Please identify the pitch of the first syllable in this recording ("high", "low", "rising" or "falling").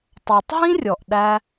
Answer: low